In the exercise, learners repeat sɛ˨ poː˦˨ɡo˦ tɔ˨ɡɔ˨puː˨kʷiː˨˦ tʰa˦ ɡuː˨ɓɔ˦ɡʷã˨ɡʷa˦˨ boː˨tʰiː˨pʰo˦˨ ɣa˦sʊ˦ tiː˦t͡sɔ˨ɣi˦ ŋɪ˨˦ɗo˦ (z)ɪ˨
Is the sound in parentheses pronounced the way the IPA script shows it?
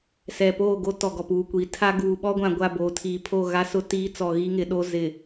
yes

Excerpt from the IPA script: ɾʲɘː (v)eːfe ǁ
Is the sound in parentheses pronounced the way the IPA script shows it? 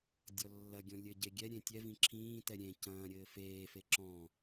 no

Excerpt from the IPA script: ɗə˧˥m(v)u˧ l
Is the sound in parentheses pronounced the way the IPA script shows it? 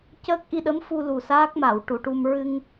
no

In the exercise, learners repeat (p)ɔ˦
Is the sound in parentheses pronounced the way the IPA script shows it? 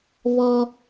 no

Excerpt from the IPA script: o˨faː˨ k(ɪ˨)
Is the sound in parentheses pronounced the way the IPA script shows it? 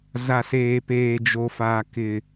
yes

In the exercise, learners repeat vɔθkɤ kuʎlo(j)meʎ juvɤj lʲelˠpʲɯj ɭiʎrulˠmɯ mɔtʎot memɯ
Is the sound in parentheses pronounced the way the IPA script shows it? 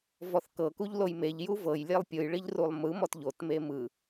yes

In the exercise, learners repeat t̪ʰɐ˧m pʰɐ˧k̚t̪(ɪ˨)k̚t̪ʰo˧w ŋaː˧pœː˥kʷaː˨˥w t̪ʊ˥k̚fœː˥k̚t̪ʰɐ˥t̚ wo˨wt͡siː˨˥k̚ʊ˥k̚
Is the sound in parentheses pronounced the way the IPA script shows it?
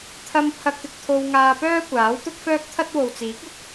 yes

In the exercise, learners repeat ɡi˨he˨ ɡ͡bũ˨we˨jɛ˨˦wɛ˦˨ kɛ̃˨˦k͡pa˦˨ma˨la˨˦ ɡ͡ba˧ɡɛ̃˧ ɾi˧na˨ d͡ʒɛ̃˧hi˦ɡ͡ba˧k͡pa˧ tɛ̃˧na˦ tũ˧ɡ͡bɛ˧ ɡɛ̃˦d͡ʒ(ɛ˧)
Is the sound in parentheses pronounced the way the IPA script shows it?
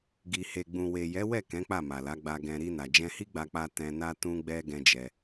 yes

